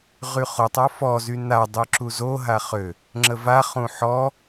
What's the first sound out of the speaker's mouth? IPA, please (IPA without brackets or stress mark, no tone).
ʁ